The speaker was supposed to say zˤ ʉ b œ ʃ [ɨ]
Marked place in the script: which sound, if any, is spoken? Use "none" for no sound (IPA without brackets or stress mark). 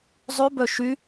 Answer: y